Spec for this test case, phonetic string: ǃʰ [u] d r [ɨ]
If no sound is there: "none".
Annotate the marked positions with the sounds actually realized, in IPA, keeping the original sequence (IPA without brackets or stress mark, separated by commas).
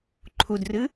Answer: u, ɨ